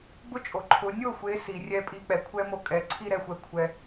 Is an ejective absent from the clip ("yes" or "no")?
no